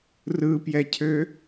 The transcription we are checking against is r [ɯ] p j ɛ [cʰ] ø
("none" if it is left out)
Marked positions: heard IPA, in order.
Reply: ɯ, cʰ

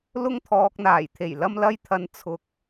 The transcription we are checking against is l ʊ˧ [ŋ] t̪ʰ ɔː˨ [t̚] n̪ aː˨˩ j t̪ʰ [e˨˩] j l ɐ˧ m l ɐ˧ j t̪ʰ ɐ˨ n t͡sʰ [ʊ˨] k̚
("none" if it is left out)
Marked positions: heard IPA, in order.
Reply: ŋ, k̚, e˨˩, ʊ˨

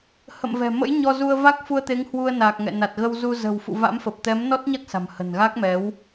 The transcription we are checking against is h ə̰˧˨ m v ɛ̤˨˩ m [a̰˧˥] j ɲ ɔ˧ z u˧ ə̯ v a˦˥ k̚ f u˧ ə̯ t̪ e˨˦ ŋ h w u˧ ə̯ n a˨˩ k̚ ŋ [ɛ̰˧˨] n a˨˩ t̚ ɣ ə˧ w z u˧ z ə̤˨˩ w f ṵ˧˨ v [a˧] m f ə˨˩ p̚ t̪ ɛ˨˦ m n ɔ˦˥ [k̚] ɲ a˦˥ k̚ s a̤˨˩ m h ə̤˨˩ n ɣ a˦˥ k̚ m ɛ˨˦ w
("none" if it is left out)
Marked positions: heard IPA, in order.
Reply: ə̰˧˥, ɛ̰˧˨, a̰˧˥, t̚

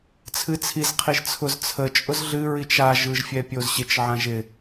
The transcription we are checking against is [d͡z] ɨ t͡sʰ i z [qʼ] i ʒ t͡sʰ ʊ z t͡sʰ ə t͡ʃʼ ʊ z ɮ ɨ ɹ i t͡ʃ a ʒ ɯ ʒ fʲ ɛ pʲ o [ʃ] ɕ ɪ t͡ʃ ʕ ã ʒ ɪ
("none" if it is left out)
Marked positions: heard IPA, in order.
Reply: t͡sʰ, qʰ, z

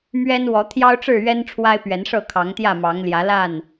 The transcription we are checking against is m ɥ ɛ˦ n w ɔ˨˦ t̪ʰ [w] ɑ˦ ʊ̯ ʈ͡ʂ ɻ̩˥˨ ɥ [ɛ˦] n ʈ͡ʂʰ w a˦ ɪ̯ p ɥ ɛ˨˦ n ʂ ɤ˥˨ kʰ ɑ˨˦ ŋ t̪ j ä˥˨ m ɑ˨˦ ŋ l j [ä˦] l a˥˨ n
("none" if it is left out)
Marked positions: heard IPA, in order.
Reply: j, ɛ˦, ä˨˦

